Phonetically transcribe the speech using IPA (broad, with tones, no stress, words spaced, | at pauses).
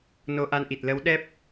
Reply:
no˧ʔa˧nʔi˨˩t̚ lə˨˦wɗɛ˦˥p̚